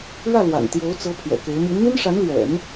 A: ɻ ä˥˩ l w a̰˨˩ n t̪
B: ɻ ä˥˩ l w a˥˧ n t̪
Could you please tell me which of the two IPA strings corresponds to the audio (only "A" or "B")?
A